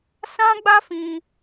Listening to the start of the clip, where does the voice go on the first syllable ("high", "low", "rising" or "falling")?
high